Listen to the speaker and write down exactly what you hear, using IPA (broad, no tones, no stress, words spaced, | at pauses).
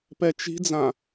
pɛt͡ʃi̤d͡zã